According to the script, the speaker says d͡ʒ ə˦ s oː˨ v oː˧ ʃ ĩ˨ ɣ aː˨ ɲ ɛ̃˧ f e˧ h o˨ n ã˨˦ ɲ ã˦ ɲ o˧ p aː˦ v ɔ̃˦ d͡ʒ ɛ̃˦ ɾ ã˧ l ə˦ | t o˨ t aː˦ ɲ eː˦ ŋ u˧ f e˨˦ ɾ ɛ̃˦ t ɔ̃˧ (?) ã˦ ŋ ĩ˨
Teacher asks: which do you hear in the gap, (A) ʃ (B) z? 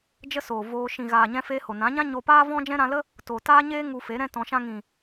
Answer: A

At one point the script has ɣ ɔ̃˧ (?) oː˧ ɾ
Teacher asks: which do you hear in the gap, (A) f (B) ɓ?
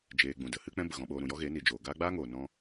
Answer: B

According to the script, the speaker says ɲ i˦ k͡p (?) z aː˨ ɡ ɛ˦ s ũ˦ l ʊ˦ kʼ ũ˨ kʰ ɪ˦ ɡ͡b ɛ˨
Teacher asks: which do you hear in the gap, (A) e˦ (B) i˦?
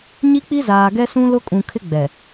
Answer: B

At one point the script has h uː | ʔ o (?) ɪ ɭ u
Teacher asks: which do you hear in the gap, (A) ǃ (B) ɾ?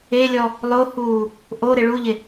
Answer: B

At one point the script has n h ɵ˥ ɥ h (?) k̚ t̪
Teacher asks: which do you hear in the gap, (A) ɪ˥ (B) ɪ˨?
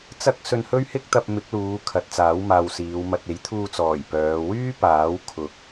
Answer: A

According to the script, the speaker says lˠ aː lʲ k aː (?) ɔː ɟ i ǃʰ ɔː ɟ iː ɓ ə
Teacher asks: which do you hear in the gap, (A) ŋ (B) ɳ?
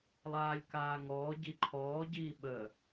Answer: A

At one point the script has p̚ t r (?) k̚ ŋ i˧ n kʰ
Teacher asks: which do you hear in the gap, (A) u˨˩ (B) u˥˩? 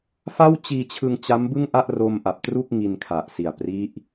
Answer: B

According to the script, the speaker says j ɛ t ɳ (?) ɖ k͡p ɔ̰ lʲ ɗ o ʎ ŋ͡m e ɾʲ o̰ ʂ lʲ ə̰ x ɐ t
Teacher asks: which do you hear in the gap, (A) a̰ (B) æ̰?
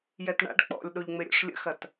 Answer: A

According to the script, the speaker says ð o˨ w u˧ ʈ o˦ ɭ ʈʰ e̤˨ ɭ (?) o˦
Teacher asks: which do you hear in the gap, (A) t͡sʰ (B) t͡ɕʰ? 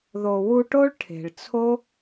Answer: A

